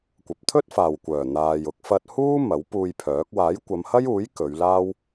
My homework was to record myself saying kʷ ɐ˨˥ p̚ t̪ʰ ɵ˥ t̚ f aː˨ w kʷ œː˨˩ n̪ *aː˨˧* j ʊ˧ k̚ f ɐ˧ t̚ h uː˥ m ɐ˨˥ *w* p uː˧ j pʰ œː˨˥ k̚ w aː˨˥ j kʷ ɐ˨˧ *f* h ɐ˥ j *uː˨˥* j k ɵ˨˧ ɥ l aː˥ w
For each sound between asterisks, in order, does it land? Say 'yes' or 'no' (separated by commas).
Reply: no, yes, no, yes